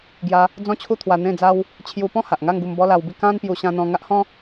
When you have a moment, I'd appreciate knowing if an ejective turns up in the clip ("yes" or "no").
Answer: no